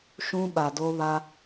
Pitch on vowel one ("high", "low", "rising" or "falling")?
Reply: high